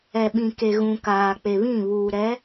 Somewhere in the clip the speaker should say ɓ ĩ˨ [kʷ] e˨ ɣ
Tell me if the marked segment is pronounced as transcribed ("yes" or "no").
no